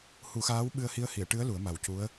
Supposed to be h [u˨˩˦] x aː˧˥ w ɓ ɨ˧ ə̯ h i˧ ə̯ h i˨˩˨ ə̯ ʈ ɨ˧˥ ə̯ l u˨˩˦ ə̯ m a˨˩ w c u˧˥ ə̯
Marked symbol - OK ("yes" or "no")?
yes